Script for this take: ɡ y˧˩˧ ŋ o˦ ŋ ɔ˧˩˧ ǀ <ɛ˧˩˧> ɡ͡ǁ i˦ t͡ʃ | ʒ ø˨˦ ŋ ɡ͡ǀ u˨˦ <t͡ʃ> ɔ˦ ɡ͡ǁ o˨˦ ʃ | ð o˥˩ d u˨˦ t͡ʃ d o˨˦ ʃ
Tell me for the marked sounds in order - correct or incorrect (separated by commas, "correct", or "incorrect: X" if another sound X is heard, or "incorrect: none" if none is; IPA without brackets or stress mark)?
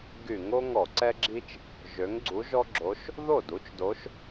incorrect: ɛ˦, incorrect: ʒ